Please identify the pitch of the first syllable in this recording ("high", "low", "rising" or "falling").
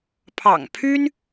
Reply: low